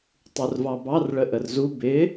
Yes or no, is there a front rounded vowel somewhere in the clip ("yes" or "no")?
no